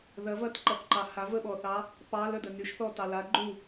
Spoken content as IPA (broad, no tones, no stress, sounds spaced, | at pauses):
ð ɐ v ɐ t ǃ ɐ θ ǃ ɑ h a v ə ɓ ɔ θ ɑ | p ɑ l ə d ə n y ʃ θ ɔ t ɑ l a ɡ͡ǃ u